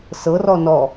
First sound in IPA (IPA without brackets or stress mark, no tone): s